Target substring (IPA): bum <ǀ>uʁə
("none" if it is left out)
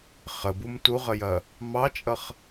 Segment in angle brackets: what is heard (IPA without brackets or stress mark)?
t